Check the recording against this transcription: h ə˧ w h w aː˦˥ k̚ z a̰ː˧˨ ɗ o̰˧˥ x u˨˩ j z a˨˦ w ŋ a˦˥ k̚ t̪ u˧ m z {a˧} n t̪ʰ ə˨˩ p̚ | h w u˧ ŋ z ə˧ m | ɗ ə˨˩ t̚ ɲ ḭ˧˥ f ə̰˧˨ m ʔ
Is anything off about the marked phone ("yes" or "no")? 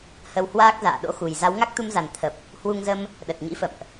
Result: yes